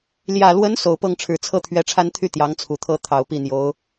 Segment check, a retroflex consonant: present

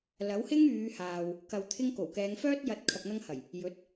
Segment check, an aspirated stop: present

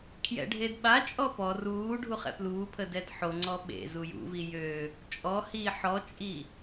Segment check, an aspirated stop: present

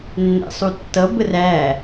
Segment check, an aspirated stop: absent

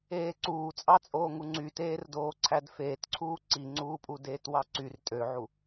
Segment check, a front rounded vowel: present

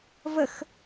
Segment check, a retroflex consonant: absent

